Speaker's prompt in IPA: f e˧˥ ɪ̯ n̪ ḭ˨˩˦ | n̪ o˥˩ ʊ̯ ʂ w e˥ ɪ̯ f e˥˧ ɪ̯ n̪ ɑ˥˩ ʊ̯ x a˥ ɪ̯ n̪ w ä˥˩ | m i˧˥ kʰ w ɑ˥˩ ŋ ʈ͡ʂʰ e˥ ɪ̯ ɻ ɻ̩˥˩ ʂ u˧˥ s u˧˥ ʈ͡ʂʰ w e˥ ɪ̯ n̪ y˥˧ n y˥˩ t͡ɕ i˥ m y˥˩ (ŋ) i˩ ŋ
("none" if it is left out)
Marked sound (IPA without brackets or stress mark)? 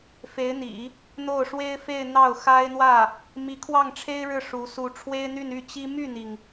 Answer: n̪